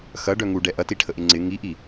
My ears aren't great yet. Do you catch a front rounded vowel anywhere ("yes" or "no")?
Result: yes